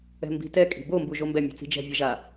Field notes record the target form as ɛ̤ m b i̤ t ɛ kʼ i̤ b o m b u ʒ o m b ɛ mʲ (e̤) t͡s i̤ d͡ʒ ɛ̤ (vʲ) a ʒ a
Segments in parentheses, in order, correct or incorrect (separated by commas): correct, correct